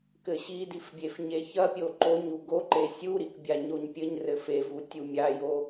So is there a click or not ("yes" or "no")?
yes